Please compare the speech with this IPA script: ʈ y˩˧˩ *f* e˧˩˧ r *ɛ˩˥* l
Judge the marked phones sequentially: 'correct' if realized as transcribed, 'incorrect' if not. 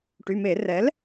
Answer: incorrect, correct

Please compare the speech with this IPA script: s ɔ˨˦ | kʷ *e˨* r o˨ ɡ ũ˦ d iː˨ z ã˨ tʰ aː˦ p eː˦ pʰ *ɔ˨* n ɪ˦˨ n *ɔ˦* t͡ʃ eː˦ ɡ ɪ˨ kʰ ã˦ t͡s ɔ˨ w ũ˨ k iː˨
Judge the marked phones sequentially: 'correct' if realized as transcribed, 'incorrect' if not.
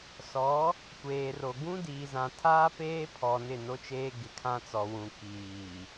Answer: incorrect, correct, incorrect

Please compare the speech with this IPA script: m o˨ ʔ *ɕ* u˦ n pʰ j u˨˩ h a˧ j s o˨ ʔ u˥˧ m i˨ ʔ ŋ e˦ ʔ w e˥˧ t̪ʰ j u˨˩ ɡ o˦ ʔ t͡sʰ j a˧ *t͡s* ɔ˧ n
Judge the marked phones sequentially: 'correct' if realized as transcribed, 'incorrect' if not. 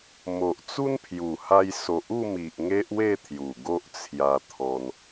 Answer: incorrect, incorrect

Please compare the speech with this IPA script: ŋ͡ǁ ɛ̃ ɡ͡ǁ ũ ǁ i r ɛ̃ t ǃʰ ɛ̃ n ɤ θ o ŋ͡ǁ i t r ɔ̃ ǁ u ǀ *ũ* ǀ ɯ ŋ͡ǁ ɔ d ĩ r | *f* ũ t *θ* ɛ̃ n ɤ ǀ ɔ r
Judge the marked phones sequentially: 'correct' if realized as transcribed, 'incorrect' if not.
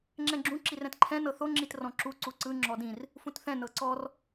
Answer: incorrect, correct, correct

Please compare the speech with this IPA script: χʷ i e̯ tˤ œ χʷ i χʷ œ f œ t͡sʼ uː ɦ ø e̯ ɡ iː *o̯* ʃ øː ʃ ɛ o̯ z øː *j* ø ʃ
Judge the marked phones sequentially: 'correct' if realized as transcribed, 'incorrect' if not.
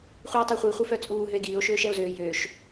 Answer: correct, correct

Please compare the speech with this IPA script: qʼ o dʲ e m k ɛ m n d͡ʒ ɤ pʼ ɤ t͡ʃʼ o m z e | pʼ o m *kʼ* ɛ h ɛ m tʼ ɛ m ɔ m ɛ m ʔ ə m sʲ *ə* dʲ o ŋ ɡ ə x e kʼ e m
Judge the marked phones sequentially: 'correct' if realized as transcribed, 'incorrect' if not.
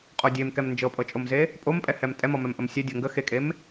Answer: incorrect, incorrect

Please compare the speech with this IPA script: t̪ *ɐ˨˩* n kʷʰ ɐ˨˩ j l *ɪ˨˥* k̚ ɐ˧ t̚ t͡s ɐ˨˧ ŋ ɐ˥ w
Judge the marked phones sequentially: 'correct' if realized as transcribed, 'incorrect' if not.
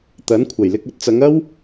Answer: incorrect, incorrect

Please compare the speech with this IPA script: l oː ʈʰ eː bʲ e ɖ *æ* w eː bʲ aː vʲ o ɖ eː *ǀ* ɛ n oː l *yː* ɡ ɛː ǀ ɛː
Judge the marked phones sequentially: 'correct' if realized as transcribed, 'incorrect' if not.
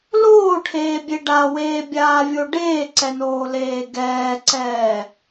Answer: incorrect, correct, incorrect

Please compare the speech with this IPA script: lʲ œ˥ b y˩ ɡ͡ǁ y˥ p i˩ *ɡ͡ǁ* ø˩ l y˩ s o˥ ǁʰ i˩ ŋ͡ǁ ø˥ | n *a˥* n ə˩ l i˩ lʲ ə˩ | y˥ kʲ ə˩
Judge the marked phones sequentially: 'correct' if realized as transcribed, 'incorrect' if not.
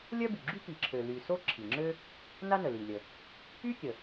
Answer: incorrect, correct

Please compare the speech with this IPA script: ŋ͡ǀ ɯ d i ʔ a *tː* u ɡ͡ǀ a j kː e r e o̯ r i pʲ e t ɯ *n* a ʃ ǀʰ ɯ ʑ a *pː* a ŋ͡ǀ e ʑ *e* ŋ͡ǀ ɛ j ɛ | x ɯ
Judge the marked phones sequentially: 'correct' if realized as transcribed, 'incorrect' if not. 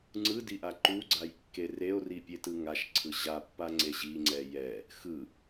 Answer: incorrect, incorrect, correct, incorrect

